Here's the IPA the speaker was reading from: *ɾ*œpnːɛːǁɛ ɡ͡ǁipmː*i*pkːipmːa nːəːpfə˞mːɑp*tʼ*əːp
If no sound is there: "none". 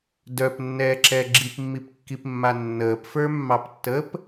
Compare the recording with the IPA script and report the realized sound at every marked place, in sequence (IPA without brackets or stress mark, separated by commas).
d, i, tː